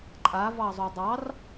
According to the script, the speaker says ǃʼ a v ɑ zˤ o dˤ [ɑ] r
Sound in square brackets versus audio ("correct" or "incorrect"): correct